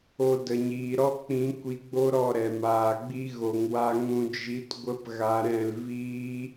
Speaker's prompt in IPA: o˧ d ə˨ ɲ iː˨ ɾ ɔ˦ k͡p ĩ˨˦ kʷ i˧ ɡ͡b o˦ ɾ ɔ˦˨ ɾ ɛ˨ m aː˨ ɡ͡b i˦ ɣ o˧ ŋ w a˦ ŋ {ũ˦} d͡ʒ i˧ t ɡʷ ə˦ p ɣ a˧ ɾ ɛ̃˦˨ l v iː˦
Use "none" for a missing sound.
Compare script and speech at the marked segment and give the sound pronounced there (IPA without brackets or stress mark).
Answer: ũ˧